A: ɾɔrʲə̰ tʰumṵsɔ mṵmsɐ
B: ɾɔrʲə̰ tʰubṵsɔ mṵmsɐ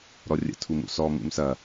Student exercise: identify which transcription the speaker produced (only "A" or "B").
A